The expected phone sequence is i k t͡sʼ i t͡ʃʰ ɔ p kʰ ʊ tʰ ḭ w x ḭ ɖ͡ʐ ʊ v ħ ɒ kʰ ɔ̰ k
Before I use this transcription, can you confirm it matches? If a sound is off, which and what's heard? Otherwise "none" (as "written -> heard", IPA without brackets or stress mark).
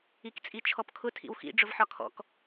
none